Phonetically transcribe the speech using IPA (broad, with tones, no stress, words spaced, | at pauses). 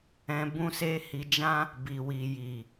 ɛ̃˧bũ˦se˦ hi˧d͡ʒã˦ | bi˨wi˨ji˨